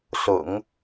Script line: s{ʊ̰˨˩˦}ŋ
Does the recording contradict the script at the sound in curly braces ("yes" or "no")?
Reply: no